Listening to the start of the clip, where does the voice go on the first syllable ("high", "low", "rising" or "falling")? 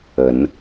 rising